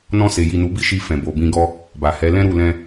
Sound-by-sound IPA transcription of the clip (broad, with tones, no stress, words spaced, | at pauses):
nɔ̃˧se˨ji˨ nu˨˦bi˦ʃi˧ fɛ̃˨bo˨bĩ˧ɡɔ˦ | ba˨hɛ˨˦lɛ̃˦ɾu˦˨ lɛ̃˧